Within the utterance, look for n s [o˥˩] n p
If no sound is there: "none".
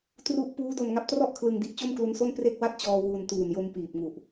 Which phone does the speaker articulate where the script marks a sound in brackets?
o˥˩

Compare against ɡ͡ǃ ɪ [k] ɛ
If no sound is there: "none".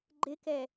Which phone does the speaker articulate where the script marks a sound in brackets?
k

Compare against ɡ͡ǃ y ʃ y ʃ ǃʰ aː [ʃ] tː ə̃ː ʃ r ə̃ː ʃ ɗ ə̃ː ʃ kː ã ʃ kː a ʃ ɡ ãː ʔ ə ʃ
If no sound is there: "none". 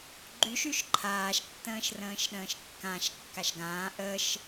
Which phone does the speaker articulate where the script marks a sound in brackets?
ʃ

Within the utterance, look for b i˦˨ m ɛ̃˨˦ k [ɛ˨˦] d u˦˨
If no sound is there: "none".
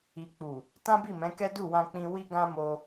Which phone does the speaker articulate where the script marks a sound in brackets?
ɛ˦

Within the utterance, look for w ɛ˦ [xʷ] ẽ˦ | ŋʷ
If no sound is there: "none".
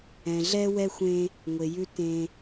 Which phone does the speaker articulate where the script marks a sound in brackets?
xʷ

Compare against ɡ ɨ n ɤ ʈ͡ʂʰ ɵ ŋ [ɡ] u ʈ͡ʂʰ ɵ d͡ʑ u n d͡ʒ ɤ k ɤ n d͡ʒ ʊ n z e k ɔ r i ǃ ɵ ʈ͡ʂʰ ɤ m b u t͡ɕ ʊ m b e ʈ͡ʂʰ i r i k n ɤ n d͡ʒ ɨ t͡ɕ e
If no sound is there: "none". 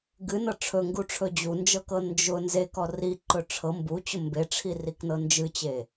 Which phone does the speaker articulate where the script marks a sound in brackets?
ɡ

